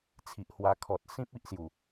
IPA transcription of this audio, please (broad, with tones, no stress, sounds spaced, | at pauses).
t͡sʰ i˨ ʔ h w a˧ kʰ ɔ˨ t̚ s ĩ˦ p̚ i˦ ʔ s j u˨˩